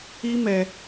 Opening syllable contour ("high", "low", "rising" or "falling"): high